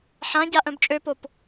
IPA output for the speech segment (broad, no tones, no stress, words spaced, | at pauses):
ħãɟa ʔœ̃bt͡ʃʼøpop